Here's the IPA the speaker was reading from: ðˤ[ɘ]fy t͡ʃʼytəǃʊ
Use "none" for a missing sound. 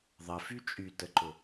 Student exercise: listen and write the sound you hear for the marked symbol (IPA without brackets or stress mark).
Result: ɘ